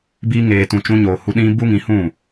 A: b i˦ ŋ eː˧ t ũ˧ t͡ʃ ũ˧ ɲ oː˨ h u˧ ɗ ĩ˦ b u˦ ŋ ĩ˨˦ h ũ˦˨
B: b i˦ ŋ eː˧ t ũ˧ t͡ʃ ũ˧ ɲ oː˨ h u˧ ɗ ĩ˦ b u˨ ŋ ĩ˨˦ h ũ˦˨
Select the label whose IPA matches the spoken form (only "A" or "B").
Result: A